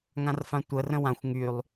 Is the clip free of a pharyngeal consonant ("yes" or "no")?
yes